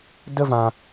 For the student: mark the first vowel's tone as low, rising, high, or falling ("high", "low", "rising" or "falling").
high